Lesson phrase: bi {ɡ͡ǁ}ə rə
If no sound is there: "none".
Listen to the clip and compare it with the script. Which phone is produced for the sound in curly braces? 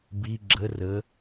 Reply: ɡ͡ǁ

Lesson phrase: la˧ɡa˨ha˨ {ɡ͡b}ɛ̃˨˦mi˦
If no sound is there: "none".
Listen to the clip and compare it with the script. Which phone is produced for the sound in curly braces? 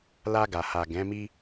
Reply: ɡ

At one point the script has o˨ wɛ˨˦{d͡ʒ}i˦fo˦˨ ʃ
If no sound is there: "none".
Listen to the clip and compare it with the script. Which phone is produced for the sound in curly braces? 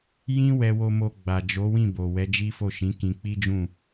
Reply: d͡ʒ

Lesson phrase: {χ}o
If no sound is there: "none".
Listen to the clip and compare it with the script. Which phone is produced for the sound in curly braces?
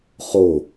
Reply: χ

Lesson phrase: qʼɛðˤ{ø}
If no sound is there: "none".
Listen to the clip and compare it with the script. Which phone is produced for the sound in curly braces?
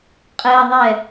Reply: ɛ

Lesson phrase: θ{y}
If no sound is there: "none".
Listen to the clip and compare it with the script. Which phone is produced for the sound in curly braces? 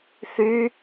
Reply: y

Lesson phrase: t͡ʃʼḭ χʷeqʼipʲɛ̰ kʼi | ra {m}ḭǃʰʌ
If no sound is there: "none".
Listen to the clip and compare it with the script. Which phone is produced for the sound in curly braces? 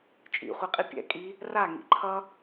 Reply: ŋ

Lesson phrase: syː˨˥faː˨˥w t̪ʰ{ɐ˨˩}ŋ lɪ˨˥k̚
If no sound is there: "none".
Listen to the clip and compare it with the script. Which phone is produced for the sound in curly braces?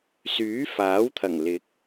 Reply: ɐ˨˩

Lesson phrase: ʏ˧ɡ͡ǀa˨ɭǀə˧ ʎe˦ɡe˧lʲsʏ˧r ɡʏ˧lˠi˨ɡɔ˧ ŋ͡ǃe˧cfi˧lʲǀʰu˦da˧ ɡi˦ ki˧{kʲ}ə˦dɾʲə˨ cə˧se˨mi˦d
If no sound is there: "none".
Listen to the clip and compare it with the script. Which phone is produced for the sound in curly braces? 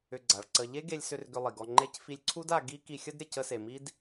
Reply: xʲ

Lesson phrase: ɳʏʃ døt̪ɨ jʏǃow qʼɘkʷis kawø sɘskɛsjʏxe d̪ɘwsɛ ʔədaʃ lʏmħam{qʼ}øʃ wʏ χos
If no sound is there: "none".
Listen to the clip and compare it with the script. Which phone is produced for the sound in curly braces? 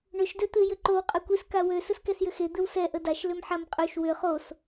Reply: qʼ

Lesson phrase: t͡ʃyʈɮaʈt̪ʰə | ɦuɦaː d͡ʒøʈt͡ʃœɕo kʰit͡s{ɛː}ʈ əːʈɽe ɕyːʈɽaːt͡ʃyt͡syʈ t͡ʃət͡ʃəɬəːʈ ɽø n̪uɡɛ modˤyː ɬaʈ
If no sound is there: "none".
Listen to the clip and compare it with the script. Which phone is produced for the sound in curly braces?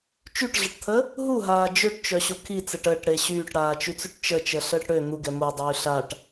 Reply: ɛ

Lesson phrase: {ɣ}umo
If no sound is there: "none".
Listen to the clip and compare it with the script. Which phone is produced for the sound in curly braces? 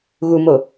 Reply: ɣ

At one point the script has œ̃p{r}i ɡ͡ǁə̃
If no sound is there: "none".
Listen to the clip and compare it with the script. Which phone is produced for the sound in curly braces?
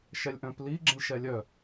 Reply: l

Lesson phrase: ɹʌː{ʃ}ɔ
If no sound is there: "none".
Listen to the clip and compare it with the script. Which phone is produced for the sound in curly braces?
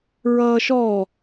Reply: ʃ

